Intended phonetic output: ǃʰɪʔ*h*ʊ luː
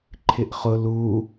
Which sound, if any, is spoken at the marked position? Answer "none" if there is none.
χ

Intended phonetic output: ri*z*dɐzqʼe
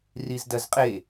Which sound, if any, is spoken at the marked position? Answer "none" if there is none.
z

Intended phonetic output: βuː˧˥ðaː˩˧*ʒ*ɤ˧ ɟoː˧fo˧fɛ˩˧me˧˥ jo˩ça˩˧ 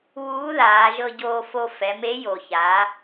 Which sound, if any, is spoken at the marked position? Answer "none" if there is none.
ʒ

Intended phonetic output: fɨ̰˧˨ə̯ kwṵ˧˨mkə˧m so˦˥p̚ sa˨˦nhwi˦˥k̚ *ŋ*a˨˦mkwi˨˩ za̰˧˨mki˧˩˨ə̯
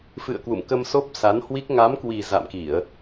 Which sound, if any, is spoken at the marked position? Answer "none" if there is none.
ŋ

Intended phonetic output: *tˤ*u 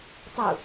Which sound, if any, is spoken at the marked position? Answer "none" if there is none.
tˤ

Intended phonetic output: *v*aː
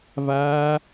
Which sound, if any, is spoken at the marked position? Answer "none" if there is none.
v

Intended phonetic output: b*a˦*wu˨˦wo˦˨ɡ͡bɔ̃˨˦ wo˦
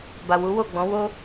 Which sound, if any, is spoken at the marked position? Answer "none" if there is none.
a˨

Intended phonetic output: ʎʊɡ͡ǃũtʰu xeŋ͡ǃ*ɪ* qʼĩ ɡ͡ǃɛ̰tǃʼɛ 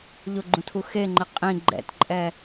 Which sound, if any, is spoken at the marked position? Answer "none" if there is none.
ɪ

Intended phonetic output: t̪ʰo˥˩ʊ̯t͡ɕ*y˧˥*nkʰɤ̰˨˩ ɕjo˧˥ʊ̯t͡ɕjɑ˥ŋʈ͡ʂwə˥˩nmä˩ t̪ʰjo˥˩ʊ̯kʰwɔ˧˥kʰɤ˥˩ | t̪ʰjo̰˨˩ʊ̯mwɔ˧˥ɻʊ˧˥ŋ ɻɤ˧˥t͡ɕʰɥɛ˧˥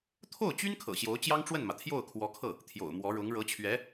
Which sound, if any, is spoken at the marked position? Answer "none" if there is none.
y˥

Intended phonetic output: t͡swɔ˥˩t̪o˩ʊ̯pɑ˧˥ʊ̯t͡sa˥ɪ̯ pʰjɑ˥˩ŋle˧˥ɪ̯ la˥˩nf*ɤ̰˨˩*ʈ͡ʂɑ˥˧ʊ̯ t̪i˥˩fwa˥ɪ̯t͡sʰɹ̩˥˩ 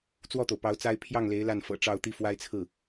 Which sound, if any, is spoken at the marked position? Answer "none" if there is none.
ɤ̰˨˩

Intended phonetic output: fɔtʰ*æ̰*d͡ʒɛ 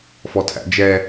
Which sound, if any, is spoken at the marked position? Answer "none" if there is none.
æ̰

